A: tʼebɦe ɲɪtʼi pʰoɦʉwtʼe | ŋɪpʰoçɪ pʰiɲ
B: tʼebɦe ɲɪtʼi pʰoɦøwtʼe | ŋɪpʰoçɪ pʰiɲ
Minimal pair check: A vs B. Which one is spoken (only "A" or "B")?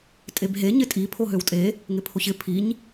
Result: B